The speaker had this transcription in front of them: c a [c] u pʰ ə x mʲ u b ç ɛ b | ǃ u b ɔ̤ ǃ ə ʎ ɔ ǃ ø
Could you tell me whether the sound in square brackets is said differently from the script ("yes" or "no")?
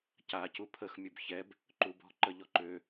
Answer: no